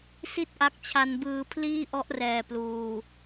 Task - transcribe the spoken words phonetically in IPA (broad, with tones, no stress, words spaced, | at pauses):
si˥˩t̚ʔa˦˥k̚t͡ɕʰa˧n bɯː˧pʰliː˥˩ʔɔ˦˥ʔrɛː˨˩ pluː˨˩